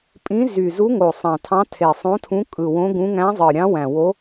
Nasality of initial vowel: nasal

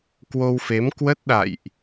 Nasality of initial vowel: oral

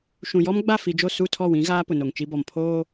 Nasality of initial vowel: nasal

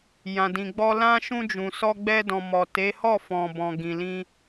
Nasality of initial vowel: nasal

